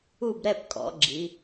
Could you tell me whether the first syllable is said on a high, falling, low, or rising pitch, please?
falling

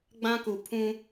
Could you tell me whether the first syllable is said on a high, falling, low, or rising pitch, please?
high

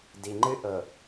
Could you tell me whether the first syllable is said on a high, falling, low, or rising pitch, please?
low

